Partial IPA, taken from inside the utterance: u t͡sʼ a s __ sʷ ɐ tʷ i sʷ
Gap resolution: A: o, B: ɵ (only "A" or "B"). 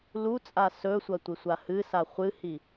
B